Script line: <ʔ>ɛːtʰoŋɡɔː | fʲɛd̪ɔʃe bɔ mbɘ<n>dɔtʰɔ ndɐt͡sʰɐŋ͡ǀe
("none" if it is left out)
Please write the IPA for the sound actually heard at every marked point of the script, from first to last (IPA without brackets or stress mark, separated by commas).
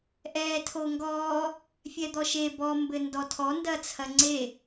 ʔ, n